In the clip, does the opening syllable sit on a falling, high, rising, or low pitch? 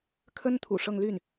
high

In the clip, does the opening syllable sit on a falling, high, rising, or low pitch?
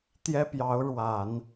high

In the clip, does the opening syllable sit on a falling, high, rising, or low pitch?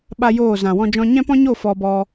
high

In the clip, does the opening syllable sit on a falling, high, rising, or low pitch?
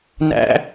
high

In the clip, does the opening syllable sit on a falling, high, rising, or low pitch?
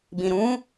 low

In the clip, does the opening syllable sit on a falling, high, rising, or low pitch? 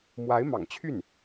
rising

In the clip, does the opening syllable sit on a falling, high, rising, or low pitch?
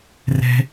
high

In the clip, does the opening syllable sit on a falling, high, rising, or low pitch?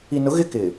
low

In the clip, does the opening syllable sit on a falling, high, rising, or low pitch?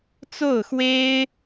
falling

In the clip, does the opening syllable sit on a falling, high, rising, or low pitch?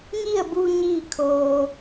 falling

